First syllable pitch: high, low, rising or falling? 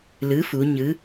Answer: rising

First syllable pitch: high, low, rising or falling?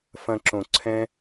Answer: low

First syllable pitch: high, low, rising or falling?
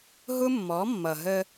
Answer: high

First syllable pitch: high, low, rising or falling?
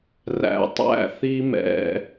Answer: low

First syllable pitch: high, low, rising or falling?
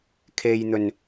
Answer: low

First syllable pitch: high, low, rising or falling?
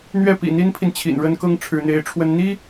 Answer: falling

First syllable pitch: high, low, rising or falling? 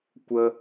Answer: high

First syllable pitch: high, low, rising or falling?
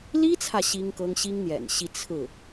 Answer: high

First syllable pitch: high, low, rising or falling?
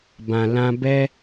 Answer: low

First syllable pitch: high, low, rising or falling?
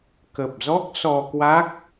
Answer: low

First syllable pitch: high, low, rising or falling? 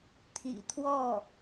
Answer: low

